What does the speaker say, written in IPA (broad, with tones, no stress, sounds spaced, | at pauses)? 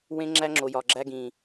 w ẽ˦ ŋ͡ǁ æ˦ ŋ͡ǁ o˨ j ɒ˨ ɡ͡ǁ æ˦ ɡ ĩ˨